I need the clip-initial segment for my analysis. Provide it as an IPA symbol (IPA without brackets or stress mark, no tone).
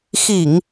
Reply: x